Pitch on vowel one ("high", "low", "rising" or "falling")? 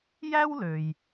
high